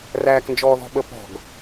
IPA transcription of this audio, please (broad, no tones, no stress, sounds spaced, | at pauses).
r æː k n d͡ʒ ɔː ð ɔ̤ ɓ ə p ɔ̤ ɡ